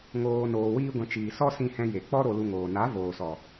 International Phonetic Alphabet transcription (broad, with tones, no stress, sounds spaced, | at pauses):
ŋ oː˧ n oː˧ w iː˦ ɡʷ ɛ̃˧ t͡ʃ iː˨ s ɔ˦ s ĩ˦ h ɛ̃˦ j e˨ k͡p ɔ˦ ɾ o˧ l u˧ ŋ oː˨ n a˨˦ v oː˨ s ɔ˨